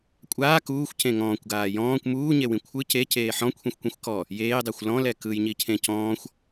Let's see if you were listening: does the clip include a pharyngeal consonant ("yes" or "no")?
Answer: yes